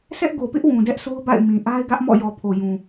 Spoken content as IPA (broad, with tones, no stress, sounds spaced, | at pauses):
s ɛ˦ ʔ ɡ o˨ p ɪ˦ ʔ w ũ˨ d ɛ˦ ʔ s o˦ ʊ̯ b a̰˦˨ ɪ̯ m ĩ˨ ʔ a˦ ɪ̯ ɡ ä˦ ʔ m ɔ̰˦˨ j ɔ˨ pʰ o˨ j ũ˨